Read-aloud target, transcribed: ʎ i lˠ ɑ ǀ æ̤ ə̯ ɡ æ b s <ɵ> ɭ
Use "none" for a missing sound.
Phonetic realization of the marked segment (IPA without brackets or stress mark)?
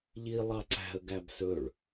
ɵ